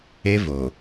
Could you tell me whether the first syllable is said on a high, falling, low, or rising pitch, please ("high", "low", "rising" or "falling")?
high